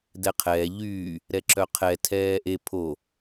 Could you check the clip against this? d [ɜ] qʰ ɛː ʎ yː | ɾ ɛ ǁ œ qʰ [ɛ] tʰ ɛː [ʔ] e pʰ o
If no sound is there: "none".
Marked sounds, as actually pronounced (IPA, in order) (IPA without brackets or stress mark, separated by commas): ɛ, ɛ, ʔ